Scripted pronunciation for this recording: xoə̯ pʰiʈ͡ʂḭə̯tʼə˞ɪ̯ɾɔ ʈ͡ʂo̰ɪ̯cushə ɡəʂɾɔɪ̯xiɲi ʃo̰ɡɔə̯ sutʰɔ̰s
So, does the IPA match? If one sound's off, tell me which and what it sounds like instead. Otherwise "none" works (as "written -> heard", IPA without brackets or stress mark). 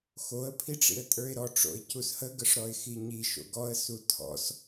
none